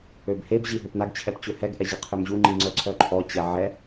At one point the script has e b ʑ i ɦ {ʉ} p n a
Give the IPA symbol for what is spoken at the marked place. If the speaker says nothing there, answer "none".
ø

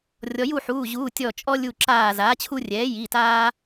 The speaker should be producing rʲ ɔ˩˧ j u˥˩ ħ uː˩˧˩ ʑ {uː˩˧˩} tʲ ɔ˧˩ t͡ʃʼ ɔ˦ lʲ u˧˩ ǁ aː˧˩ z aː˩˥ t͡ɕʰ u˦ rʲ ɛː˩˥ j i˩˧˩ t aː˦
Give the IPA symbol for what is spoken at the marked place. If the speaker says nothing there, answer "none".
uː˩˧˩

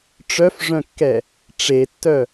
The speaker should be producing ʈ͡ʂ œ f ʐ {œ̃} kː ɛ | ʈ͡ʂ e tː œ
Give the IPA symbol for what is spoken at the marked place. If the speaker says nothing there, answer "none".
œ̃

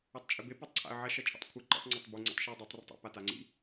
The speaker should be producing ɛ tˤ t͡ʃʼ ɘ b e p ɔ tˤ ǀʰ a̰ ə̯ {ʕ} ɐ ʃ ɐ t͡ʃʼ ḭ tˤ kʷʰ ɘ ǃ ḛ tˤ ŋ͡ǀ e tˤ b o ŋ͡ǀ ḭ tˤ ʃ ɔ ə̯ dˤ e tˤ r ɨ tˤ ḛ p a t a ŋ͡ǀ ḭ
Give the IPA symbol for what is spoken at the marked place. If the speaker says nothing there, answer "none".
ʕ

